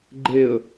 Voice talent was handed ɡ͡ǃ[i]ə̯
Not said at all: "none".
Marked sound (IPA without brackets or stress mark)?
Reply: e